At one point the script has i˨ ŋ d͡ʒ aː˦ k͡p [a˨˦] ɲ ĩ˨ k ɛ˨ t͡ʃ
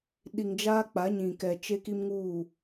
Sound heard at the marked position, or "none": a˨˦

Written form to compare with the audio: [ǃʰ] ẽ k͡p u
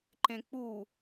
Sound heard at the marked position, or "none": ǃ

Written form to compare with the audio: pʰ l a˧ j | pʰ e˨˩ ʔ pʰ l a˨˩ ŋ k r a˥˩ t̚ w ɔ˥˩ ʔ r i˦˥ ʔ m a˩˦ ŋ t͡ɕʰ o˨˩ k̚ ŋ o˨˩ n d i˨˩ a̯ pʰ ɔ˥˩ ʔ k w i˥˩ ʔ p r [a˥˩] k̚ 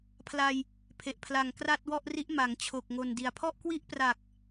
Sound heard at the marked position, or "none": a˨˩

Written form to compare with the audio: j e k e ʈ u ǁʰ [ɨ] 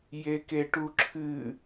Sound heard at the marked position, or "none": ɨ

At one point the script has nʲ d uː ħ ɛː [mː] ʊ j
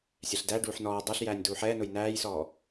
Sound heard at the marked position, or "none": n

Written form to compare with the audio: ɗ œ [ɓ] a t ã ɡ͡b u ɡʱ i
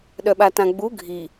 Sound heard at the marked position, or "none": ɓ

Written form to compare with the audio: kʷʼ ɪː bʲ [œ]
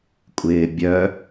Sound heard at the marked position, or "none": œ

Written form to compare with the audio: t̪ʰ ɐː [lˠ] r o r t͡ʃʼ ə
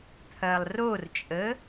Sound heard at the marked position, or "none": lˠ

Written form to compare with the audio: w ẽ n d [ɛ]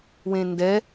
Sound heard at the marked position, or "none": ɛ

